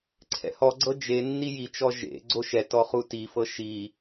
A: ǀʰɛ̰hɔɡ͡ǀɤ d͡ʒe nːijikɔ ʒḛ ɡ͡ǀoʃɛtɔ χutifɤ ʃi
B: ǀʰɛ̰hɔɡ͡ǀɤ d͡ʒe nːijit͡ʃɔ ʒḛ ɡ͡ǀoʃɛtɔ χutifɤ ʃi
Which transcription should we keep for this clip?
B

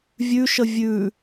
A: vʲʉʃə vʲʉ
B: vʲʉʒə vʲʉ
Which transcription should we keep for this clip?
A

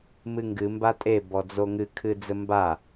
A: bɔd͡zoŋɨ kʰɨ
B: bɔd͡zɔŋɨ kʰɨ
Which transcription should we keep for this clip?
A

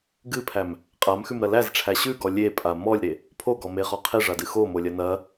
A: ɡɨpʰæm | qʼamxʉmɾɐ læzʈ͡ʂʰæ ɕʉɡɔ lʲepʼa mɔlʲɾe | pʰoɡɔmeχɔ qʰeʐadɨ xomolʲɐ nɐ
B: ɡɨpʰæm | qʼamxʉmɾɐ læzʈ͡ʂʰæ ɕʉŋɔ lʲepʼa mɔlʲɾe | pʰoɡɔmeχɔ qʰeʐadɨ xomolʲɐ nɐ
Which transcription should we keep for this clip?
A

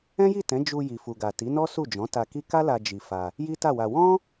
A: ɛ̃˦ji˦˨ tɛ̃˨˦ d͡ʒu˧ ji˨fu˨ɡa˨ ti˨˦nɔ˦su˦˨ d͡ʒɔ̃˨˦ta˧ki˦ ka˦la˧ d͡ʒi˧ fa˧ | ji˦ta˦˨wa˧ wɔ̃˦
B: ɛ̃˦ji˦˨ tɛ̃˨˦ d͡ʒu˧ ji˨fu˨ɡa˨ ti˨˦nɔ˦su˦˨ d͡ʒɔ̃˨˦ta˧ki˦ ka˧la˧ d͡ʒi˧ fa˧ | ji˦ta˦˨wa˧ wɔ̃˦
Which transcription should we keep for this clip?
A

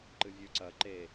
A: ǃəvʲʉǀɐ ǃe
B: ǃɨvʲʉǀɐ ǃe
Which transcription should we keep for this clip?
B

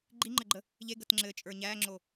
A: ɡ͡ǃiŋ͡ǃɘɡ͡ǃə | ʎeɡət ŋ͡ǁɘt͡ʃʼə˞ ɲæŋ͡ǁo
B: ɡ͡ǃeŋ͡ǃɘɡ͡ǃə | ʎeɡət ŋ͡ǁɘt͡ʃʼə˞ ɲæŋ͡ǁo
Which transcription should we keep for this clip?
A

